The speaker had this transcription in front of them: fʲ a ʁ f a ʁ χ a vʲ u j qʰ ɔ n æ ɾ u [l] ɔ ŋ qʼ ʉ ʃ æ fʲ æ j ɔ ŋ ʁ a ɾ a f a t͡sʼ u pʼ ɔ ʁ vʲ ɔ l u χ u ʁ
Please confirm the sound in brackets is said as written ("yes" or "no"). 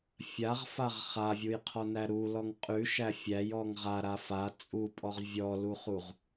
yes